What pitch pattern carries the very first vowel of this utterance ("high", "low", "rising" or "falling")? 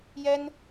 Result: high